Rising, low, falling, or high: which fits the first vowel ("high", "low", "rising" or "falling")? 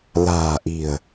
low